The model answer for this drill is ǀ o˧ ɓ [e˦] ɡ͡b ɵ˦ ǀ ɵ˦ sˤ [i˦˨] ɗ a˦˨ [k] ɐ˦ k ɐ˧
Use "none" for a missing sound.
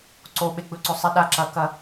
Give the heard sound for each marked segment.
e˦, i˧, ǁ

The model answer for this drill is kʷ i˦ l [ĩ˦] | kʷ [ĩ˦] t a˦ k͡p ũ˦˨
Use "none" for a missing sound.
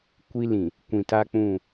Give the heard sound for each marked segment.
ĩ˨, ĩ˨

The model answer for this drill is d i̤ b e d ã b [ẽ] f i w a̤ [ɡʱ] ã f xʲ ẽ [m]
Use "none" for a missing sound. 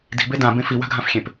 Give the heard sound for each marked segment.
ẽ, ɡʱ, p

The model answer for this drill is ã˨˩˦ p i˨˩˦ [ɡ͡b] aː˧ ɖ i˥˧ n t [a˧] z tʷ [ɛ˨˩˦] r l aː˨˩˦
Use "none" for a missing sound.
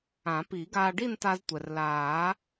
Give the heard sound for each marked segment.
ɡ, a˧, ɛ˩

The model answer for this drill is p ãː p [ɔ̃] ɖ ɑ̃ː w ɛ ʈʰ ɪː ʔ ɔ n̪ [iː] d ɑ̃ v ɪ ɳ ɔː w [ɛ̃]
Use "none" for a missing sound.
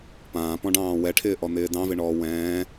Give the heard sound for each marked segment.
ɔ̃, ɪː, ɛ̃ː

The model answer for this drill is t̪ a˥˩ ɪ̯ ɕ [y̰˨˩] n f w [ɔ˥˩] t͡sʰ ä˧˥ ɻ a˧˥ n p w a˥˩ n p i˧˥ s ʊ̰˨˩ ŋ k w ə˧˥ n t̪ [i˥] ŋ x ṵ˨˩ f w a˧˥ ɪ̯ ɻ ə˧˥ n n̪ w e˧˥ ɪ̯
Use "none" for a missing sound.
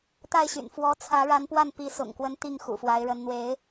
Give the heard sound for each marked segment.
y̰˨˩, ɔ˧˥, i˥˩

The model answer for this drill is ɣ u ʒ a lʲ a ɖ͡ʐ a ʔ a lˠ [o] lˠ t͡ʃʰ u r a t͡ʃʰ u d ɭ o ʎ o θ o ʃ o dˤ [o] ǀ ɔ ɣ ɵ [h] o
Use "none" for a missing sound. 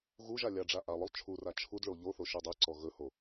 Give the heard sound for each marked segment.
ɵ, ɵ, h

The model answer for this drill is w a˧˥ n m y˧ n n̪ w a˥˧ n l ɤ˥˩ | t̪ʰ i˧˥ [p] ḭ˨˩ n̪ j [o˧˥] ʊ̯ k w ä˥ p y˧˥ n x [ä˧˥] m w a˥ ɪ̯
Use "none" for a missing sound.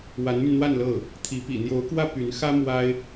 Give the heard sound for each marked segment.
p, o˧˥, ä˥

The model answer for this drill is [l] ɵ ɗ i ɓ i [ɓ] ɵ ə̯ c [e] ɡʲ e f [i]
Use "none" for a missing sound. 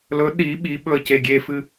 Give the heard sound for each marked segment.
l, ɓ, e, ɨ

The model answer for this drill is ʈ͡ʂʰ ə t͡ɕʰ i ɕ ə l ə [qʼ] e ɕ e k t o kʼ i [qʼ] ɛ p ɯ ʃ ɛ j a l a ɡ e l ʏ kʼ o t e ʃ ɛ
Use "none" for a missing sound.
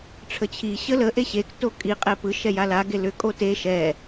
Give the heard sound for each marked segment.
ʔ, qʼ

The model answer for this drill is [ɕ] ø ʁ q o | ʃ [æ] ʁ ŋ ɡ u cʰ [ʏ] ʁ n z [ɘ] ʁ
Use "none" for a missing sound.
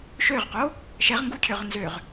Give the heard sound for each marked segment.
ʃ, ɛ, ʏ, ø

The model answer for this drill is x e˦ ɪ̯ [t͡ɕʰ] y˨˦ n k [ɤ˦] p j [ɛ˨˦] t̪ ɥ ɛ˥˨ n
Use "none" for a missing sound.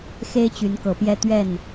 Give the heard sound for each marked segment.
t͡ɕ, ɤ˨˦, ɛ˦

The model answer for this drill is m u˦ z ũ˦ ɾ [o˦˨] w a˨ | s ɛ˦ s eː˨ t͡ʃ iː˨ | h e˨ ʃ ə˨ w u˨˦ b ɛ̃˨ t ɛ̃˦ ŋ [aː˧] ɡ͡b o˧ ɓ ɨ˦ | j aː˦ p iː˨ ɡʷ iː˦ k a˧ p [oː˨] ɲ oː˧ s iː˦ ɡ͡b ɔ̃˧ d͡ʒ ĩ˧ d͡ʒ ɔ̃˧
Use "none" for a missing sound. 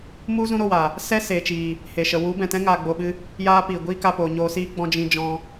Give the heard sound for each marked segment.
o˦˨, aː˧, oː˨

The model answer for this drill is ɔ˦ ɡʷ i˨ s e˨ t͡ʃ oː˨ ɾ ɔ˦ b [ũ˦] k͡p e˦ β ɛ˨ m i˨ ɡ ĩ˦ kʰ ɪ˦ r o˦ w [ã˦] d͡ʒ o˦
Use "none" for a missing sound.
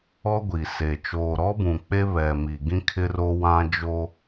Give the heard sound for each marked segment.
ũ˨, ã˦

